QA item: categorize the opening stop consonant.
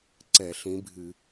click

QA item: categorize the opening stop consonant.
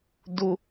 plain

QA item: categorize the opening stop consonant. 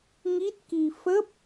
plain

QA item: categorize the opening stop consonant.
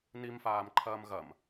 click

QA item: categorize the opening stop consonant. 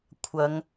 aspirated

